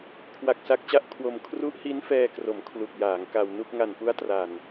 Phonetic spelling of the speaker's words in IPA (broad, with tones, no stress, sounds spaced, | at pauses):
kʰ w a˨˩ k̚ s a˦˥ k̚ t͡ɕ a˥˩ ʔ kʰ w o˧ m kʰ r u˦˥ ʔ h i˦˥ n f ɛː˧ k r o˩˦ m kʰ l u˨˩ k̚ j aː˩˦ ŋ k a˧ w n u˥˩ k̚ ŋ a˨˩ n p u˦˥ a̯ t r a˨˩ n